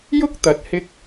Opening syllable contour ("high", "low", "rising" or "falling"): high